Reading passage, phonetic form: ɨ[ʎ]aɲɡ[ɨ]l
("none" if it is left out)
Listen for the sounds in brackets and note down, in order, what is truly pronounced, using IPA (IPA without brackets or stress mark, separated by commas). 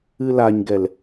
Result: l, ɛ